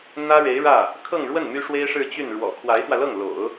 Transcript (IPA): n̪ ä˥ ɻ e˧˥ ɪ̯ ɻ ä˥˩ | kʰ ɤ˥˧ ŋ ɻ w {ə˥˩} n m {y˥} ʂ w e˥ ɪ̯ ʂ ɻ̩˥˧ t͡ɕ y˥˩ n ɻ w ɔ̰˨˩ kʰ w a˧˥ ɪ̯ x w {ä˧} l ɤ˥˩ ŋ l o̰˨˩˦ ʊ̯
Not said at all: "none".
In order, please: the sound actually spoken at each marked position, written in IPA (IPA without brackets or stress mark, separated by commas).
ə˥˩, y˥, ä˧